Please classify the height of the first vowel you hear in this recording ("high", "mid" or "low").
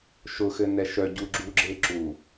high